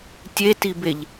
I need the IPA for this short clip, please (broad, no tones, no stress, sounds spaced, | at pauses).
tʲ e t i b e ʎ